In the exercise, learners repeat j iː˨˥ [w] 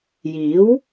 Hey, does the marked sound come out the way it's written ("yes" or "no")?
yes